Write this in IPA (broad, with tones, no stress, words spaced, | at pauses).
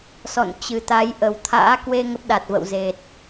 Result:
sɔ̰˧˨nt͡ɕɨ˨˩t̪a˨˦j ʔə˨˩wt̪ʰa̰ː˧˥kwe˧ ŋə˦˥p̚ɗa˨˩t̚və̰˧˨w ze˨˩t̚